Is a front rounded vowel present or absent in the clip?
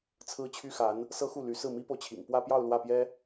present